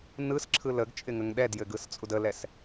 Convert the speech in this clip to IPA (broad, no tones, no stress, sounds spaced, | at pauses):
n ɯ s ǁʰ ɯ l ə ɡ t͡ʃʼ ɪ ŋ ə ŋ ɗ ɛ d j ɘ ɡ ɯ s t͡sʼ u d ə l ɛ s